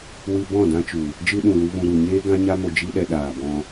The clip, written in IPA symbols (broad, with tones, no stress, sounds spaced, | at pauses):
w ɨ˦ b ɔ̃˦˨ d ã˦ t͡ʃ u˨ | d͡ʒ ɨ˧ ɗ ũ˨ l u˦ v ũ˧ ɾ u˨ ɲ eː˦ ɡ ã˦ ɲ a˦ m o˧ d͡ʒ i˦ ɗ ɛ˧ ɗ aː˨ b ɔ̃˧